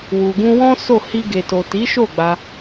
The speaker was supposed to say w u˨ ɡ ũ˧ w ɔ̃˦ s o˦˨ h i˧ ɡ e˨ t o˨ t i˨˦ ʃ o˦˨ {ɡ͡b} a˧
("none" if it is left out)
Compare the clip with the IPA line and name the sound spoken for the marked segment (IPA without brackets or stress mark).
ɡ͡b